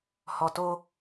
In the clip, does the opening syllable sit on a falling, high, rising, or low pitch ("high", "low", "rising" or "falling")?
low